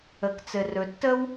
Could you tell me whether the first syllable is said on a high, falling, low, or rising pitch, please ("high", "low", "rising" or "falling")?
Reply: low